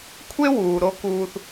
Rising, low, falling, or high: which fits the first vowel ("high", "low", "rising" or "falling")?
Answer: high